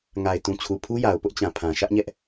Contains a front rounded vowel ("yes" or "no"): no